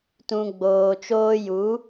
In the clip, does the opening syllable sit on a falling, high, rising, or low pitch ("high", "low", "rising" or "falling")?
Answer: low